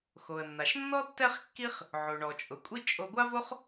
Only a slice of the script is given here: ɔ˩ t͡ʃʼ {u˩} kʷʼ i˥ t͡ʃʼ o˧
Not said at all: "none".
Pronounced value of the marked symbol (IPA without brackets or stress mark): ʊ˩